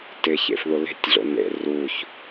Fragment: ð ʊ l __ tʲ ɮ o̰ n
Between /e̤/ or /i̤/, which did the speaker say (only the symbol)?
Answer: e̤